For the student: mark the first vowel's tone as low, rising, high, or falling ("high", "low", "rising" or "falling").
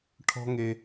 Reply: high